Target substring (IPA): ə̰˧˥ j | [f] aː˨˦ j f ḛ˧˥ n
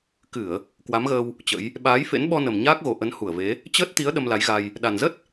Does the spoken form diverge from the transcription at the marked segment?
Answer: yes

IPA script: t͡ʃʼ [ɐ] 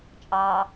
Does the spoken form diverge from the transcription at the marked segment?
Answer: yes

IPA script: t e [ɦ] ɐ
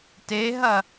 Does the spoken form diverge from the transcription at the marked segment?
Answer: no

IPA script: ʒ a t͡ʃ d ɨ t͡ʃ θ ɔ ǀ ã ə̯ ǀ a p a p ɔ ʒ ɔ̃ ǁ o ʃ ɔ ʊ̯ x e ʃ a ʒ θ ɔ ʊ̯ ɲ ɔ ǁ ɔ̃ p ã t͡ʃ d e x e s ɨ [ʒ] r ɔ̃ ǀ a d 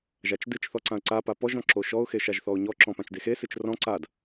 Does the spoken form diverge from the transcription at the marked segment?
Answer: yes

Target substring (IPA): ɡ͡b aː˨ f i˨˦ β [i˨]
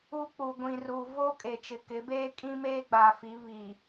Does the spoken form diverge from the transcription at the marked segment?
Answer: no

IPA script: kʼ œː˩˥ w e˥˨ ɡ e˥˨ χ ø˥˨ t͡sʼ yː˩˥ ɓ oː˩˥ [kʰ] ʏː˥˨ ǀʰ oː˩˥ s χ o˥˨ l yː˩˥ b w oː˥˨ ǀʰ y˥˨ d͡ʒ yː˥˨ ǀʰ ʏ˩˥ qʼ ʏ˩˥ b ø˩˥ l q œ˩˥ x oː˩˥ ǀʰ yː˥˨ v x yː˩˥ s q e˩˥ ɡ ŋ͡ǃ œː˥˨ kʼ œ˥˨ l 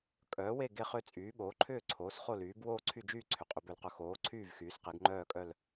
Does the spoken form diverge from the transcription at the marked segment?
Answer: yes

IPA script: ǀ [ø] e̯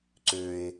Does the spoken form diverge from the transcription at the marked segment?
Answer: no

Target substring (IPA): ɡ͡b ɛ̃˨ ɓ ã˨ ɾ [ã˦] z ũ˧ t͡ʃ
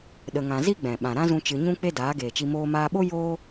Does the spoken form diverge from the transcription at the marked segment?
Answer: no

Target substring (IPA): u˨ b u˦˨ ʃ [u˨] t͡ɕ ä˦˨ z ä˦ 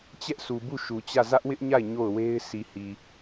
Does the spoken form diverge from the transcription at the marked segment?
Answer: no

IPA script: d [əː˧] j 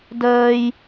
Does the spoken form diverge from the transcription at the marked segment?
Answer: no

